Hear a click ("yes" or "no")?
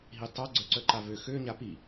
yes